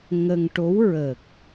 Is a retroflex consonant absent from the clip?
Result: no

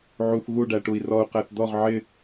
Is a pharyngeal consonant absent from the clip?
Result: no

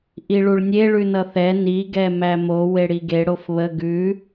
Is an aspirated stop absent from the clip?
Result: yes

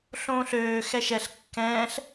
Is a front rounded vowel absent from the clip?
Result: no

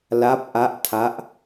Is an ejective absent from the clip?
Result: yes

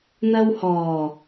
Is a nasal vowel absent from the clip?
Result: yes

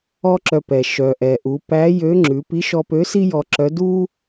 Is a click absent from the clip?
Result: no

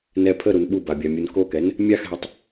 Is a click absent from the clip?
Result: yes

